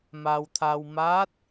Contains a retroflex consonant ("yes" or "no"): no